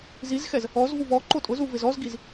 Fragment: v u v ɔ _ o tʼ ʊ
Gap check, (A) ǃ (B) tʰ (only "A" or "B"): A